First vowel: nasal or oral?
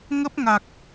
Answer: oral